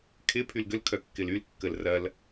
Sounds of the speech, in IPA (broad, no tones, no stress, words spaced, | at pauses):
kʰɪ pʰylɡølkʰœ kːɪlylkːəl rɐl